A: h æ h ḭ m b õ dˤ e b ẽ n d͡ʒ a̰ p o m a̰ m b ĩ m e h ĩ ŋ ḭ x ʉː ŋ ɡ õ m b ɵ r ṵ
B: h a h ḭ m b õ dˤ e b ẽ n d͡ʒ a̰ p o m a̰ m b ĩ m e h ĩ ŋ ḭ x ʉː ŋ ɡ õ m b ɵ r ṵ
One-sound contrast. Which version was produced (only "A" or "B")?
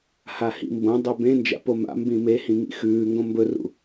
B